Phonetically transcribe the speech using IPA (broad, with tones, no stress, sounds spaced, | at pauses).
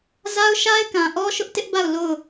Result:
z a˦ ʊ̯ ʃ a˦ ɪ̯ k ã˨ ʔ ɔ˦ ʃ ʊ˦ ʔ t ɪ˦ ʔ b a˦˨ ʊ̯ l o˦˨ ʊ̯